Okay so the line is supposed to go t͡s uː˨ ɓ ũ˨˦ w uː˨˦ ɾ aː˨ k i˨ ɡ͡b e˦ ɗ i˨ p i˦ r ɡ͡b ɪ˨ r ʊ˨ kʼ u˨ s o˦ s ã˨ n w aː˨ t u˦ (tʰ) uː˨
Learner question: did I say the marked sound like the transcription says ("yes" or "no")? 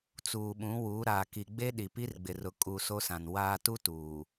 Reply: no